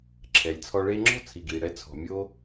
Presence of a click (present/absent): present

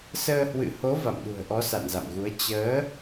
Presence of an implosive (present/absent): present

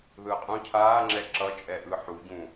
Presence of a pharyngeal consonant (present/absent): present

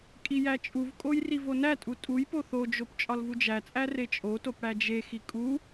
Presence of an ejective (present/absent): present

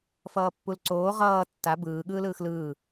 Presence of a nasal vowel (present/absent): absent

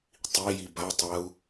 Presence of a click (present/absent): absent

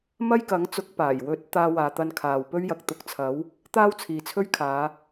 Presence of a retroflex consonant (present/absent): absent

